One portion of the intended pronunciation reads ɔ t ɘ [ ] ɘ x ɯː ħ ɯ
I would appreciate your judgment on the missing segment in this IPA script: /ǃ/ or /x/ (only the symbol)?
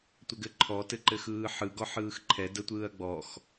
ǃ